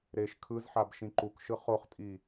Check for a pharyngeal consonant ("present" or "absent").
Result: present